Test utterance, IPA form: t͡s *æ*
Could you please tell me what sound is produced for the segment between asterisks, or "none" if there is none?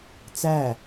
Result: æ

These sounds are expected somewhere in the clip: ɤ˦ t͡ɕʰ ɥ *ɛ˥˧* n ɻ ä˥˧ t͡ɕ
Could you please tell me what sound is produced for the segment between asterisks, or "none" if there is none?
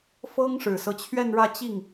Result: ɛ˥˧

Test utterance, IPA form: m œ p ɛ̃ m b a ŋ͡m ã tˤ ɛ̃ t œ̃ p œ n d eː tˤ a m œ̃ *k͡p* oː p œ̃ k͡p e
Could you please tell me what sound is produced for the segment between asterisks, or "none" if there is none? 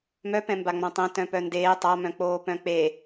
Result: k͡p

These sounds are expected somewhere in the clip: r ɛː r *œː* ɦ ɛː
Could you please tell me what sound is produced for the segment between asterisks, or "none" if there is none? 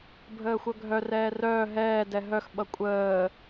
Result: œː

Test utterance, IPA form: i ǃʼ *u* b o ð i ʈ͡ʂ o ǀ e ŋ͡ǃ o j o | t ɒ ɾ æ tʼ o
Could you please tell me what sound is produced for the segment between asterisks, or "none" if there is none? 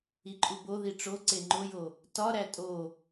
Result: u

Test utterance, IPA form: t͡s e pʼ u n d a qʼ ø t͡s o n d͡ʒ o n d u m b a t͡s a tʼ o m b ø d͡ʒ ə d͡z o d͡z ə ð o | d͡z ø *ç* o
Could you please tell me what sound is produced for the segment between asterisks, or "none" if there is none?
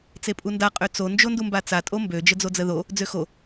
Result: x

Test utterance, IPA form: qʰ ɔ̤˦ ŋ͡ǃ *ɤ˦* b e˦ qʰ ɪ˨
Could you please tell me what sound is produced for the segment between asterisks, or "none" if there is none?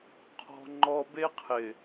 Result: ɔ˦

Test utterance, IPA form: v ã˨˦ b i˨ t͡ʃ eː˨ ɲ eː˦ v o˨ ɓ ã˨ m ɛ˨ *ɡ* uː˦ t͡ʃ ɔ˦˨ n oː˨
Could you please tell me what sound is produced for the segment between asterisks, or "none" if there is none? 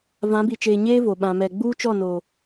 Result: ɡ͡b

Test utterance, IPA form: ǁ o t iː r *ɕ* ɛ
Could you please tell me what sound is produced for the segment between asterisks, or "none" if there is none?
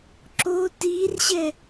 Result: ɕ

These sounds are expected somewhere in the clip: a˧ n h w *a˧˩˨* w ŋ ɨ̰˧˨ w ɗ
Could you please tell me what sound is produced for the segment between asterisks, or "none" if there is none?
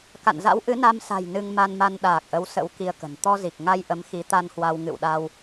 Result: a˧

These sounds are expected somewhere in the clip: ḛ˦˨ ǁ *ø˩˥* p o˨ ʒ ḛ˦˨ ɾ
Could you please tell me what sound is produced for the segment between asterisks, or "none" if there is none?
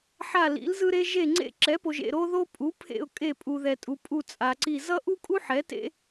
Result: ɛ˩˥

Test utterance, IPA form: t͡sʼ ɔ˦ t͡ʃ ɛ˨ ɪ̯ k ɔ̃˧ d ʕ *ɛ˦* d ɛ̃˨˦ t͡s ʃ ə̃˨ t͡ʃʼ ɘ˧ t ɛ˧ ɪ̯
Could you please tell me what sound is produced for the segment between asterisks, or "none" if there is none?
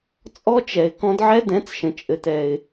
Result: ɛ˦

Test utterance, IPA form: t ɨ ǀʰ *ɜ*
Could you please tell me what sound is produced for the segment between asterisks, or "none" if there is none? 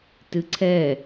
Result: ɛ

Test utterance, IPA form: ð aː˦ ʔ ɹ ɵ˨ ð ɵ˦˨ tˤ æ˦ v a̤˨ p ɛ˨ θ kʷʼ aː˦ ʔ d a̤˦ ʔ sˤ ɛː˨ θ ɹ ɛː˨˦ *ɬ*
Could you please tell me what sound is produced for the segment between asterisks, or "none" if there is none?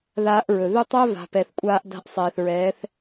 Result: θ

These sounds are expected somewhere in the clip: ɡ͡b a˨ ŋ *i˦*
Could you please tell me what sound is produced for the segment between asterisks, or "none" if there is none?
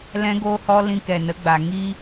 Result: i˦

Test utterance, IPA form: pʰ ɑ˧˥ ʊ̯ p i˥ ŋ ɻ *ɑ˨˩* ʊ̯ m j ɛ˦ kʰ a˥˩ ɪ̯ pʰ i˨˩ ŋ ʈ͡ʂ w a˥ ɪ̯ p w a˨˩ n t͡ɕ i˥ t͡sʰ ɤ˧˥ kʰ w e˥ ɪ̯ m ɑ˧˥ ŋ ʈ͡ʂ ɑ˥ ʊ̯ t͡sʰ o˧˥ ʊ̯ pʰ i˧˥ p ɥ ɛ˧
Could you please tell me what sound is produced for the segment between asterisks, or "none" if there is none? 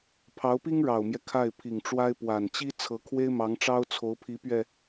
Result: ɑ˨˩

